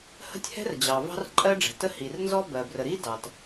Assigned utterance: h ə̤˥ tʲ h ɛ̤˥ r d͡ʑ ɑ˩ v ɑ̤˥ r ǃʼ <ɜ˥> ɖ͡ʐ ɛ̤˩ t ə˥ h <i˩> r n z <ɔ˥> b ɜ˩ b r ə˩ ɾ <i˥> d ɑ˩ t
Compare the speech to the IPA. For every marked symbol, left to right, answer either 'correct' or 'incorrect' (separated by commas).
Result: correct, correct, correct, correct